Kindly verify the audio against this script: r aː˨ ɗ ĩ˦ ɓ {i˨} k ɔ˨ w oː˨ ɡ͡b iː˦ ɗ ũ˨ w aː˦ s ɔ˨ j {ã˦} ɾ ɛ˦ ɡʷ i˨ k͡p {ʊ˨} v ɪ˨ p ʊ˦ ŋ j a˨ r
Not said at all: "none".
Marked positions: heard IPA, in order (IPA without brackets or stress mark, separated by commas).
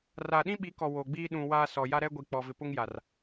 i˨˦, a˦, ɔ˨